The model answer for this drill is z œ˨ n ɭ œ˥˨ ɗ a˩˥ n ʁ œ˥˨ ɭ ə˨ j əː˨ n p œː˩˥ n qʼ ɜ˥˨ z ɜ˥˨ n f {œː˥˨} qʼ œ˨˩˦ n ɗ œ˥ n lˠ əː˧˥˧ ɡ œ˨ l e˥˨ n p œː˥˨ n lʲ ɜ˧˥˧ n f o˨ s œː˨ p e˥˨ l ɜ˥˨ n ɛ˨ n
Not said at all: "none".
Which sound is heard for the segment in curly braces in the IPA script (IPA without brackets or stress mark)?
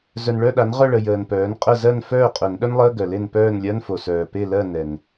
œː˥˨